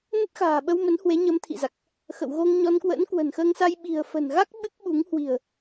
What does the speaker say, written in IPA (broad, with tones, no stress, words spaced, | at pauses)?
nə˦˥t̚xa̤ː˨˩ɓə˧wmə˨˦n hwe˨˦ɲə˨˦m t̪ʰḭ˧˨za˨˩k̚ | xə̰˧˨wɣo˧ŋɲɔ˧n kwə̰ː˧˥nkwə̤˨˩nxəː˧ŋsa˧j ɓi̤˨˩ə̯fə̤˨˩nɣa˦˥k̚ ɓɨ˦˥k̚ɓu˨˦ŋ hwi̤˨˩ə̯